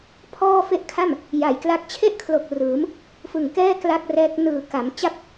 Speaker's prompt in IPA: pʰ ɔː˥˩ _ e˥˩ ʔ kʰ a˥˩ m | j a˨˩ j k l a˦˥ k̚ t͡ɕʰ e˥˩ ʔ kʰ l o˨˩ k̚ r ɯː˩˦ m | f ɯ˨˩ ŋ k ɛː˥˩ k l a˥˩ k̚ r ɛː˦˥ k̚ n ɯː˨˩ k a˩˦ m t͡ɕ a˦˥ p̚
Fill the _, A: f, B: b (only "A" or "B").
A